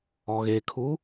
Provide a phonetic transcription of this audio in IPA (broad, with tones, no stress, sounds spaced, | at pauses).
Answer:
ɔ˨ ɣ eː˨ kʰ u˨˦